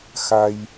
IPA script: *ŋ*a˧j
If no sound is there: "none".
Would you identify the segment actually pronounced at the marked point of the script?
x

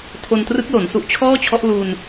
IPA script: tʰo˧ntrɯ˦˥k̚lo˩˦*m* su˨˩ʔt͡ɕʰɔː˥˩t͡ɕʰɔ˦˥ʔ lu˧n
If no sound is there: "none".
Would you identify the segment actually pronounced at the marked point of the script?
n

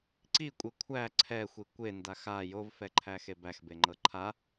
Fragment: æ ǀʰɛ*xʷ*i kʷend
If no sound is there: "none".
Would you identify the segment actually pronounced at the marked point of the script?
xʷ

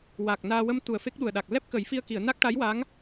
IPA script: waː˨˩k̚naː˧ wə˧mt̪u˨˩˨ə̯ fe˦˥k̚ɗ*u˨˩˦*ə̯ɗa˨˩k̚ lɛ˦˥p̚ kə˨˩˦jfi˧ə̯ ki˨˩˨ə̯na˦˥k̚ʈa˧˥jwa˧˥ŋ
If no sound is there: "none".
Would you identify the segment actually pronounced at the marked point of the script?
u˨˩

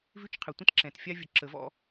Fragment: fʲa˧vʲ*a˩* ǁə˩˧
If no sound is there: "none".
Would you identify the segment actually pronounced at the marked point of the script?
ə˩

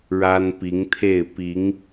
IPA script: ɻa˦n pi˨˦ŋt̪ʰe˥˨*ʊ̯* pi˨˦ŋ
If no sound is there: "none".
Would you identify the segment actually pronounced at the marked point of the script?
ɪ̯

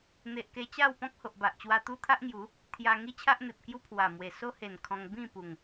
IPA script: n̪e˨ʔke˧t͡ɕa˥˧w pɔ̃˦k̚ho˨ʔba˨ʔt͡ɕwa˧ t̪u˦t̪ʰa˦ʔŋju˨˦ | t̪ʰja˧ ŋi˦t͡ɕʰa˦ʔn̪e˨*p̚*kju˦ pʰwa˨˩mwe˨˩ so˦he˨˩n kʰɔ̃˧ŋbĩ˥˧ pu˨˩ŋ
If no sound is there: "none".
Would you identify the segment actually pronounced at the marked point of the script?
p̚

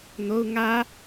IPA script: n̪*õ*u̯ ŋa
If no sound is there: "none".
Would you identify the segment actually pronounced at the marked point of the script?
o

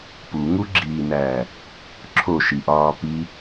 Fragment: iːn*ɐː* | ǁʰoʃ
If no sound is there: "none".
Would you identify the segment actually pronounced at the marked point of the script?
æː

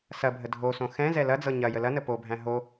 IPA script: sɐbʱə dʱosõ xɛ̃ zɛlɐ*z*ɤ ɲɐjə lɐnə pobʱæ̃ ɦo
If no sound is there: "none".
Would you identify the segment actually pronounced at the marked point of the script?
d͡z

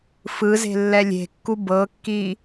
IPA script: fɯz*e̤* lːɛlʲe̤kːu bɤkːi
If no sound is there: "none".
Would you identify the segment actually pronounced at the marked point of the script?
e̤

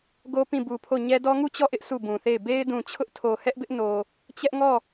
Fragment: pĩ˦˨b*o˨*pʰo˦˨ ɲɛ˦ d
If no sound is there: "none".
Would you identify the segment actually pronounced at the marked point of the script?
u˨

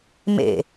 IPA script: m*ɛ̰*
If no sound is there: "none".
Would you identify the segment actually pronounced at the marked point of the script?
ḛ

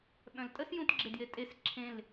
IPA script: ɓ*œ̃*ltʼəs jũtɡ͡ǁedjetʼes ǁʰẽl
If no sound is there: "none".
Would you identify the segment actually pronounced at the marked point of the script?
œ̃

